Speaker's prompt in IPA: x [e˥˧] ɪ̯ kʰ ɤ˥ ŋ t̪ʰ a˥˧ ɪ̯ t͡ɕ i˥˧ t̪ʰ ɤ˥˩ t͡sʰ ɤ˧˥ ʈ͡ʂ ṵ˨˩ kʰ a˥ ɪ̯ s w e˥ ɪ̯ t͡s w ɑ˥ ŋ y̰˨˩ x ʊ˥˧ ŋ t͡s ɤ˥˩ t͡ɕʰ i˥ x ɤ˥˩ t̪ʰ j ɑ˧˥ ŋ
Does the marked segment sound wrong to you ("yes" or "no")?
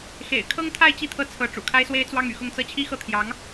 yes